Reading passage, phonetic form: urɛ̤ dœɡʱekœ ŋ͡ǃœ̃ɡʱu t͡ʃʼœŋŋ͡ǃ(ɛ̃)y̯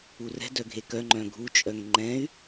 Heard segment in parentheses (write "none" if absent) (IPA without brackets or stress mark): ɛ̃